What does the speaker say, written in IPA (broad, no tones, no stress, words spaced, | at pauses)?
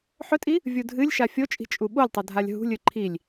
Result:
ħɵtʼi | vʲudʱɨlʲʃa fʲot͡ʃʼi̤ t͡ʃʼuɓolʲtˤɵ dʱalʲɦṳlʲɨ ǃʰilʲ